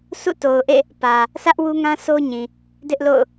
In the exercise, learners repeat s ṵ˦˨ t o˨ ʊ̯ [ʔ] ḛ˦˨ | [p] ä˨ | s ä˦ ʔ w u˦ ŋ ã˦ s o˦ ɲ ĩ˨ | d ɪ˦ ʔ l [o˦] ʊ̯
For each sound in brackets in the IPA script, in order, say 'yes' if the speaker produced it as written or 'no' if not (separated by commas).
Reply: yes, yes, no